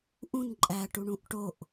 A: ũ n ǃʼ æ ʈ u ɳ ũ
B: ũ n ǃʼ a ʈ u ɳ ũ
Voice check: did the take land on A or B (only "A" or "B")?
A